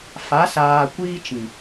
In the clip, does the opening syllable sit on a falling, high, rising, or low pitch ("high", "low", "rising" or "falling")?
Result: rising